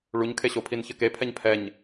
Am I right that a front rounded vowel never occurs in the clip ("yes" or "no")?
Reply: yes